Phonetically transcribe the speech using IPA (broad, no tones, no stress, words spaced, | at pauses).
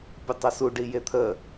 pʲətˤəsu ɖijet̪ʰə